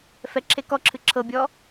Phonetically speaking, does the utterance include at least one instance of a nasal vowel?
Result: no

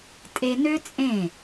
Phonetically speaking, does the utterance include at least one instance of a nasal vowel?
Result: yes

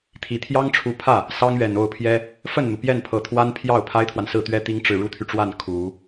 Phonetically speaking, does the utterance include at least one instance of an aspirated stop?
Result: yes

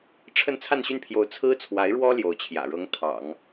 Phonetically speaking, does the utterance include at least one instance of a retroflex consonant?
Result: yes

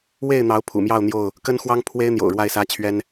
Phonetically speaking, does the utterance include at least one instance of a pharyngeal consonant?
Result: no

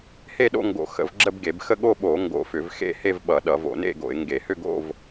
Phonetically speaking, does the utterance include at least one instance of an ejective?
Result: no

